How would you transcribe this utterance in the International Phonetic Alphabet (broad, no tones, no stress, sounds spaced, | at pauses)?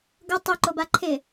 ɡ ʊ tˤ u ǃ o b a ǃʰ ɪ